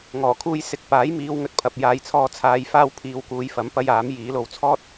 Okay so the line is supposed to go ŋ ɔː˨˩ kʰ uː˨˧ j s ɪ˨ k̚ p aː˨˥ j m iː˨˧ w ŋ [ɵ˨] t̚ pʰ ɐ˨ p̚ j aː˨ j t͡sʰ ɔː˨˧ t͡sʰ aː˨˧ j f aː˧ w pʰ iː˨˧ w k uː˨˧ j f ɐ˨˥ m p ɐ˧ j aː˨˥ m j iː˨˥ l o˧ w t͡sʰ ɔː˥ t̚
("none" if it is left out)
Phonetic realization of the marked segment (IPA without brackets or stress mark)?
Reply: ɵ˨